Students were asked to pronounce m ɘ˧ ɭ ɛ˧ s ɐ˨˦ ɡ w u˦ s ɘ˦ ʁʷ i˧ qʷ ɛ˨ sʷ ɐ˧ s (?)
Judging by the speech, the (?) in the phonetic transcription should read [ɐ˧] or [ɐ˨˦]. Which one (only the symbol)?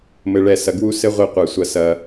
ɐ˧